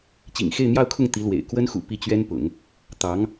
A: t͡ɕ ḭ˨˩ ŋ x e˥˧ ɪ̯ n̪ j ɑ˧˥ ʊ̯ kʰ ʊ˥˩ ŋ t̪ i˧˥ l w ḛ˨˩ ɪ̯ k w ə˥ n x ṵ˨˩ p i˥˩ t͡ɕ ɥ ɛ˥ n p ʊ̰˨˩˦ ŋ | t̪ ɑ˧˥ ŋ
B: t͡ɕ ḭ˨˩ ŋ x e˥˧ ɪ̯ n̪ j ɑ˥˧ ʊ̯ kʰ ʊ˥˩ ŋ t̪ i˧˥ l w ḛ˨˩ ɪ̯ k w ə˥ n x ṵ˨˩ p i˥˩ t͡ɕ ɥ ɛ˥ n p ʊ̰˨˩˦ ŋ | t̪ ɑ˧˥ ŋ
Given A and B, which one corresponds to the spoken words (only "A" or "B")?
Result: B